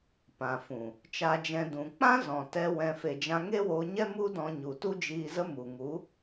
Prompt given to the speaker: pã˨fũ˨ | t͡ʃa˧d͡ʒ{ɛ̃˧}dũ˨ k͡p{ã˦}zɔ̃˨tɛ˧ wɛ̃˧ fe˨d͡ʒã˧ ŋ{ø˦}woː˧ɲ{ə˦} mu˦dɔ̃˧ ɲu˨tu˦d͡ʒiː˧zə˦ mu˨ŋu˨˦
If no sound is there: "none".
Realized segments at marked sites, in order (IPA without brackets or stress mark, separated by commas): ɛ̃˧, ã˦, e˦, ɛ˦